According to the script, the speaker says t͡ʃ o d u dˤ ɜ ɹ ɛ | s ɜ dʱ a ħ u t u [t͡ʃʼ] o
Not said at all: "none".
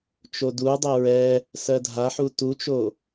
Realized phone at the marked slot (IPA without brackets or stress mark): t͡ʃ